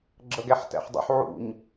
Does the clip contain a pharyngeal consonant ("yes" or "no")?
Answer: yes